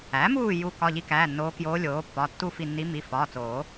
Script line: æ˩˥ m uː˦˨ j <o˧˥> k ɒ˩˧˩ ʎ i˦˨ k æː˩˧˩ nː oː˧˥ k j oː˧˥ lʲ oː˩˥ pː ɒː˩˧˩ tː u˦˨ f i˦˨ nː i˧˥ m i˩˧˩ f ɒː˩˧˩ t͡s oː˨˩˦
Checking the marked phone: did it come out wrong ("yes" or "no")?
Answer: yes